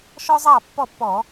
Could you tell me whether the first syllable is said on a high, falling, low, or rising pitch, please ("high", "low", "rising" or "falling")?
high